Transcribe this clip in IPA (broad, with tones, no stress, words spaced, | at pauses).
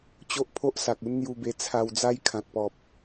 t͡ɕo˦ʔpʰo˦ʔ sa˨k̚u˦nn̪ju˧be˧ t͡sʰa˧wd͡za˦j kʰã˨t̚pɔ˨p̚